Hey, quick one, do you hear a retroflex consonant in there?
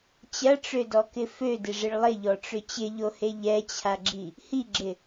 yes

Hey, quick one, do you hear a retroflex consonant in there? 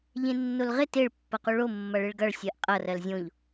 yes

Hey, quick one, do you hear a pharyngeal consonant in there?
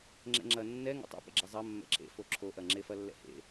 no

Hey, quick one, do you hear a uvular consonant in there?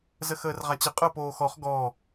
yes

